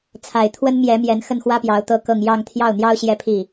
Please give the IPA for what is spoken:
t͡sʰa˨˩ɪ̯ t̪ʰwə˥nmjɛ˧˥ mjɛ˧˥nxə˥˩nxwä˥pjɑ˧˥ʊ̯ t̪ɤ˥kɤ˥˧ŋ jɑ˥˧ŋ t̪ʰjɑ˥˩ʊ̯n̪jɑ˥ʊ̯ ɕjɛ˥˧pʰi˥˩

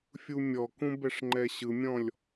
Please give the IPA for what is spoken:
fʲumʲɔkũ bɛʂŋ͡ǃɛɕɯmʲɔ̃lʲ

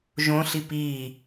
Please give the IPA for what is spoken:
ʒõ ɬipiː

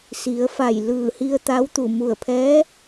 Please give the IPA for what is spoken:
si˩˧ə̯fa˧˩j lɯː˧˩hi˧ə̯ t̪a˧˥wt̪u˧˩ mu˧˩ə̯pʰɛː˧˥

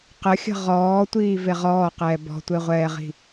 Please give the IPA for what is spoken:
qəxʲə̤ ʁɔːtʷiː veʁɔːqɛː bɔ̤tʷeʁʷɛːʁi̤

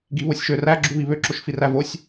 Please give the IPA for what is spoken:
ɡiβosʲʃøræ ɡ͡ǁuβiβø ǁoʃfirævosʲ

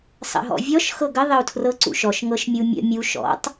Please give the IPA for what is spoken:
sˤə̰ɦɔ̰vʲɔʃ xɤɡə ðˤəu̯tʰrɤǀṵʃɔʃ ŋɤʃmʲumʲə̰ mʲu ʃɔ̰tˤ

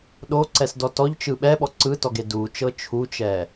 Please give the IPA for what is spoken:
ɗoǀɛsdɔ tɔʎt͡ʃɯ ɓɛɓɔ ǀɯtɔɡe dut͡ʃɤ t͡ʃʰut͡ʃɛ

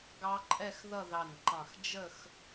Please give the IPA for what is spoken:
ɡɑ˦˥ǃʼɛ˥˧xðʌ˥˧ ðɑ˧˩nǃɑ̃˧˩x d͡ʒə˥˧x

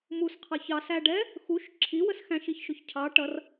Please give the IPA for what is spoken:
musqʰɑç ɑsæɖɛ | xuʃ ǁʰiwəs xæ̃ʃiçʃʊç cʰɑ ʈʌr

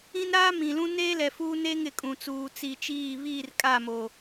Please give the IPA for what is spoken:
ĩ˦nɾaː˦ mĩ˨lũ˦neː˦ lɛ˨fuː˦ne˦ŋ ɪ˨kʼũ˨t͡suː˨ t͡si˨t͡ʃiː˦˨ βiː˦˨rkʼa˦˨mo˨

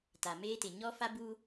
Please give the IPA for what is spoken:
ta˨meː˦tɪ˨ ɲɔ˦ fa˦bu˦

